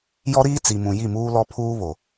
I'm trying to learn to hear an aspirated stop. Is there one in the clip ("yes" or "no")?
yes